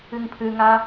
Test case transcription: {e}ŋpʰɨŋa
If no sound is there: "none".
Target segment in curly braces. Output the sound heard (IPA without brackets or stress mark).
ɨ